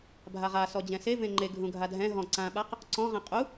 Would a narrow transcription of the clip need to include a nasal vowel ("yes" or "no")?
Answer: yes